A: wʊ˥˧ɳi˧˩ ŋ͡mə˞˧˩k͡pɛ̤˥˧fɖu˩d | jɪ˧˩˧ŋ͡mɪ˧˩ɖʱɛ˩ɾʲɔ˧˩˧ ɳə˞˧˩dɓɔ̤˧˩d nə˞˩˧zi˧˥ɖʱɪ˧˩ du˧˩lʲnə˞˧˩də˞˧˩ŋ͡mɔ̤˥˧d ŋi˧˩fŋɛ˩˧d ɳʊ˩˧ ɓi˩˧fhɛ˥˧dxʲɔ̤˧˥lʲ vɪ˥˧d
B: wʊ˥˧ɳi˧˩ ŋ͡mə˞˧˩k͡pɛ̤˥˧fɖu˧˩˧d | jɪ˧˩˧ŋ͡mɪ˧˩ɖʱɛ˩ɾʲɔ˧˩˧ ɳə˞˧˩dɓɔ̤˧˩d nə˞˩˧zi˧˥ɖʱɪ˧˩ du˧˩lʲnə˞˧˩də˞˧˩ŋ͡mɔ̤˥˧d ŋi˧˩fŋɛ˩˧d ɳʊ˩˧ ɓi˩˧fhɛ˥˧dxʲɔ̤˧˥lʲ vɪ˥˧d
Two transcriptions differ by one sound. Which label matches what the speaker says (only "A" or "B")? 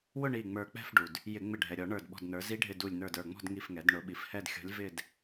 A